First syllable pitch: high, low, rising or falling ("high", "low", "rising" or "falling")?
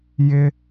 low